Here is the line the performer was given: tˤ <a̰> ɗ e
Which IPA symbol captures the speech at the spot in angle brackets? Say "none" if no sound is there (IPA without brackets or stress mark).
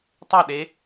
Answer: a